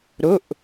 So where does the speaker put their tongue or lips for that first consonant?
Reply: tongue tip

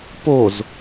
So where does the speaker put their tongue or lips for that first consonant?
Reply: lips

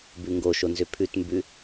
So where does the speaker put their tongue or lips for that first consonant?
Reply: lips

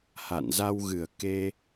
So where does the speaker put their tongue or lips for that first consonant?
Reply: throat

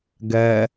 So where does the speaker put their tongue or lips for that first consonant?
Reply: velum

